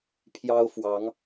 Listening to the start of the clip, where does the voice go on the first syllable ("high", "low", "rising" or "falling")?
high